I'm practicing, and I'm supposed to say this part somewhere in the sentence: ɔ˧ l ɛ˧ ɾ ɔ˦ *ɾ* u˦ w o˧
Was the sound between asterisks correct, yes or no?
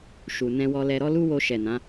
no